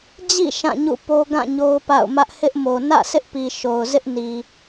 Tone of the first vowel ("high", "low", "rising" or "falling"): falling